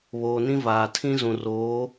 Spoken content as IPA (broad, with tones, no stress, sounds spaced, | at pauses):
β oː˨ n ĩ˦ v aː˨ tʰ ĩ˦ z ũ˨ r oː˨˦